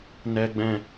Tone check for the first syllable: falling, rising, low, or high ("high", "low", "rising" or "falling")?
low